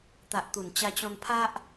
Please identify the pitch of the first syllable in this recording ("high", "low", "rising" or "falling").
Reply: low